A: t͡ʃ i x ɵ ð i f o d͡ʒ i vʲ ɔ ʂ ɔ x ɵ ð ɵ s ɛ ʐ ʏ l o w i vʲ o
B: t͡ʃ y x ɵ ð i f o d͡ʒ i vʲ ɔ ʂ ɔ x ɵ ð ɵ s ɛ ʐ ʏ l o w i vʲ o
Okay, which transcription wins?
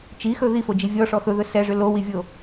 A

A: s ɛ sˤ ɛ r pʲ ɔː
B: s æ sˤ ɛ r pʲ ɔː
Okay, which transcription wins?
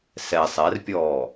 A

